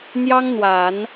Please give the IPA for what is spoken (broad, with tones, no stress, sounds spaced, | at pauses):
n̪ j ɑ˥ ŋ n̪ w a˨˩˦ n